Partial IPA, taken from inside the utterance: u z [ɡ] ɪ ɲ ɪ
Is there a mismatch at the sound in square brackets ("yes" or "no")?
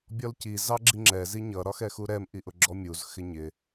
yes